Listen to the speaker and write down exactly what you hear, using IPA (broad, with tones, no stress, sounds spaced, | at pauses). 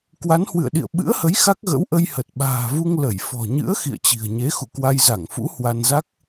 k w a˨˦ n h w ɨ̰˧˨ ə̯ ɗ ḭ˧˨ ə̯ ɓ ɨ̰˧˥ ə̯ h ə˨˦ j x a˦˥ k̚ ɣ ə̰˧˥ w ʔ ə˧ j h ə˨˩ t̚ ɓ a̤ː˨˩ v u˧ ŋ l ə˧˩ j f ɔ̤˨˩ ɲ ɨ̰˧˥ ə̯ x ḭ˧˨ ə̯ t͡ɕ i̤˨˩ ə̯ ɲ e˨˦ x ṵ˧˨ k w a˧ j z a˧˩ ŋ f ṵ˧˥ h w a˧ n z a˦˥ k̚